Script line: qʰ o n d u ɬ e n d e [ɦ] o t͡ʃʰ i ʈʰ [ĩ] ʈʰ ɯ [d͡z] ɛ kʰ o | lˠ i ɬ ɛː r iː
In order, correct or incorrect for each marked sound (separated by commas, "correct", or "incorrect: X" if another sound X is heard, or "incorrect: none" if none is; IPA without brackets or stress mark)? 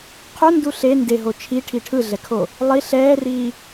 correct, incorrect: i, incorrect: ɮ